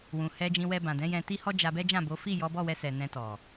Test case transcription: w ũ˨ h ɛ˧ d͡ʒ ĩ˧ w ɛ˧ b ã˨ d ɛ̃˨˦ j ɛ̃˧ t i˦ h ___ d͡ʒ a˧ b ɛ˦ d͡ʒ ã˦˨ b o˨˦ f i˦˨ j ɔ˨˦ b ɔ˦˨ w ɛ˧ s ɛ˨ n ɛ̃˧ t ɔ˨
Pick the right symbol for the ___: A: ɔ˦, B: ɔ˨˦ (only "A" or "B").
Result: A